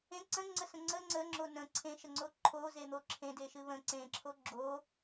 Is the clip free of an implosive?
yes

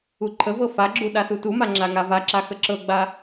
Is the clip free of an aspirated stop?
no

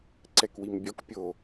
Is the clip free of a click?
no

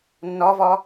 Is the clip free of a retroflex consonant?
yes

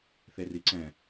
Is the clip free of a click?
no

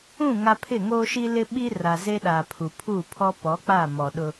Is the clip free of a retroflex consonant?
yes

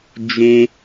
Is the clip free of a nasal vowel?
no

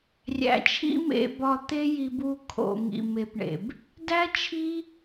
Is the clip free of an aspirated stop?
no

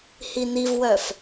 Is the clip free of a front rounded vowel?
no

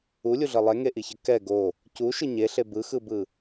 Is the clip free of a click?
yes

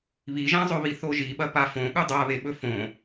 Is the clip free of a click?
yes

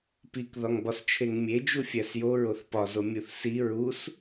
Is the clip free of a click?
yes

